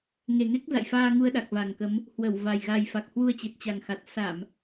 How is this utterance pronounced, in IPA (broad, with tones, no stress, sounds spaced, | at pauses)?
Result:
ŋ e˨˩ ŋ e˦˥ k̚ z a̰˧˨ j f aː˧ ŋ u˧ ə̯ ɗ a˨˩ k̚ v a˨˩ ŋ k ə˨˦ m | h w ə˧˩ w v a˨˩ j ɣ a˨˩ j f a˨˩ k̚ h w u˧ ə̯ t͡ɕ e˨˩ t̚ t͡ɕ a˨˩ ŋ x a˨˩ t̚ s a˧˩˨ m